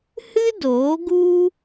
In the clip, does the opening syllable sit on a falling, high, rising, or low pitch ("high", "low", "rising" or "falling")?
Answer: high